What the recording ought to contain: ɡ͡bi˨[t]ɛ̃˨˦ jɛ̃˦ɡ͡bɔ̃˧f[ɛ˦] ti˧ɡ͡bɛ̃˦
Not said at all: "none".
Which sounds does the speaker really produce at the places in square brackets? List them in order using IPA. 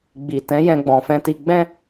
t, ɛ̃˦

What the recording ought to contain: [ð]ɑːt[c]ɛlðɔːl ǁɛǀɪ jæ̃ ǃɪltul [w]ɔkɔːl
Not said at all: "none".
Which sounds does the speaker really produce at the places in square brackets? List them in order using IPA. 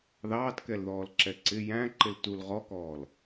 ð, k, ʁ

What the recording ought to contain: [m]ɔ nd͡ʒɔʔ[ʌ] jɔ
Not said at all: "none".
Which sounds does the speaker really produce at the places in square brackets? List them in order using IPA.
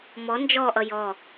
m, ʌ

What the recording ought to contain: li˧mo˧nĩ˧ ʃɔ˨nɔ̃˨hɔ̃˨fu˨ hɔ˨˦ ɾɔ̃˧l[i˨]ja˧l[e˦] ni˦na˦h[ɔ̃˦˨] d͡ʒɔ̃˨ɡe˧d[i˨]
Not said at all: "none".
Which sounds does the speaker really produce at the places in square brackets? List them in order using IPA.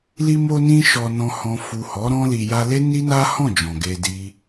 i˨, e˦, ɔ̃˦˨, i˦

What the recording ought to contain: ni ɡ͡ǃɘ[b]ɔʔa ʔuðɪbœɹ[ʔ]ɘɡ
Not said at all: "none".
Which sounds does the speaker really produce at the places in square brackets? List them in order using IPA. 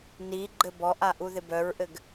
b, ʔ

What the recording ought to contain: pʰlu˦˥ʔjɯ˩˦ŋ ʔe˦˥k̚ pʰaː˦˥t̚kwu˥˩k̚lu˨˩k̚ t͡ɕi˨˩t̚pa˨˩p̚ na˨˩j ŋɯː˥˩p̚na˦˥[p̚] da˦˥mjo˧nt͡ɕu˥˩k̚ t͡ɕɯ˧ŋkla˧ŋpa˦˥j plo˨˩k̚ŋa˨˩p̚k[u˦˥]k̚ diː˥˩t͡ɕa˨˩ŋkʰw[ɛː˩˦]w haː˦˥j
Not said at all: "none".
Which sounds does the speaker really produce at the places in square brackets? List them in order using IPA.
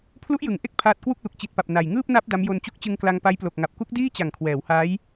p̚, u˦˥, ɛː˩˦

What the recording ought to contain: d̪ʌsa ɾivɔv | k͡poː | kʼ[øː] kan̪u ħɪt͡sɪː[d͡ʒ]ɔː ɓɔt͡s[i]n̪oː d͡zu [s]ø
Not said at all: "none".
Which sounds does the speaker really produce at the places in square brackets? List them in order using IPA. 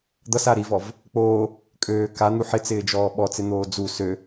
øː, d͡ʒ, ɪ, s

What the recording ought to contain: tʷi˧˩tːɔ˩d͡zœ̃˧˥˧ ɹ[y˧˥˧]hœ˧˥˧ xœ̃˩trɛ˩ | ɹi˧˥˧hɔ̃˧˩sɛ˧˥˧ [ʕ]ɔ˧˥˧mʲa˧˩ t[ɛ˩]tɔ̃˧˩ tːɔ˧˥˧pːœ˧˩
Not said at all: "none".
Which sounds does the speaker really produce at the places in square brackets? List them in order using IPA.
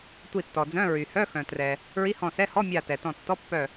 y˩, h, ɛ˩

